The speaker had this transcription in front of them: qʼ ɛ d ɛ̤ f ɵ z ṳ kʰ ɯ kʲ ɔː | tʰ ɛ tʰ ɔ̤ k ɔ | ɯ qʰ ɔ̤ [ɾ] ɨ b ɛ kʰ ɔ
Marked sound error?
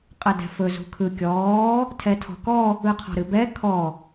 no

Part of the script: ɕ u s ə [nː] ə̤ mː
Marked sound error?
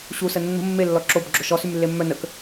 no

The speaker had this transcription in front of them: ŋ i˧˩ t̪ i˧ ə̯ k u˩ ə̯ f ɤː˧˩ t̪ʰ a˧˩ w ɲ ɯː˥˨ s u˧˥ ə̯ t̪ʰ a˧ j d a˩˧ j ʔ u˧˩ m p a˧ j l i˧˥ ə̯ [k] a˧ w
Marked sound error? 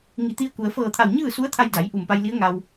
yes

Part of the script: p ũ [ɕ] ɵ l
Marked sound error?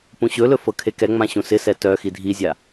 no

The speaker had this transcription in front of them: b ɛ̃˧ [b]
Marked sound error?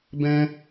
yes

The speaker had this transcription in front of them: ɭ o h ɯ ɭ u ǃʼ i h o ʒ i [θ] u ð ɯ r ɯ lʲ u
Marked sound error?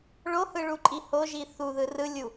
no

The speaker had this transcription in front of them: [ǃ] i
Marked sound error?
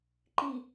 no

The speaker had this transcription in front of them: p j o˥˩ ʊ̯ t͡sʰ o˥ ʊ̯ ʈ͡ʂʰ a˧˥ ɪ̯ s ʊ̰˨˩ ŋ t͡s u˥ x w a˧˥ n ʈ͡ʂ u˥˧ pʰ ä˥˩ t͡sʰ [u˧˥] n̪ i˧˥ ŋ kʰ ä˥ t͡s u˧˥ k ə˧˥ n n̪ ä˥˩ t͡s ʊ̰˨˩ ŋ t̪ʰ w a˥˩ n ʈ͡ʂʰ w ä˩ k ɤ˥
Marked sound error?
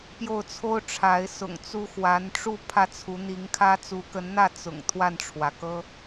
no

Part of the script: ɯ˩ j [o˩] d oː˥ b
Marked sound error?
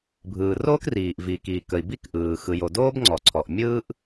no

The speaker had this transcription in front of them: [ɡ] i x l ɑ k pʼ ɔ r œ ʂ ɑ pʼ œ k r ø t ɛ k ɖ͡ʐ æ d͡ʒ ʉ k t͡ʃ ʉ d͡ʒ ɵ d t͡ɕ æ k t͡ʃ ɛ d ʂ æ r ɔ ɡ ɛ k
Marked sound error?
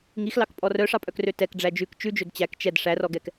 yes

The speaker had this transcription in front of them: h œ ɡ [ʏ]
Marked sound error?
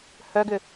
no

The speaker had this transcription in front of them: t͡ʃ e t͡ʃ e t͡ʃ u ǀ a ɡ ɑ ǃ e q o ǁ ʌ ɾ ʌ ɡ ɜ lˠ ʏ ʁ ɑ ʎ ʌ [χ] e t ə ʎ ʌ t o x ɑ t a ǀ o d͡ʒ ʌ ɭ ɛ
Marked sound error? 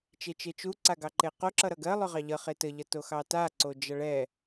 no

